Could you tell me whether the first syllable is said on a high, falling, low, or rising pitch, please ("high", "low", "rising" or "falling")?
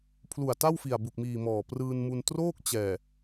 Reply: low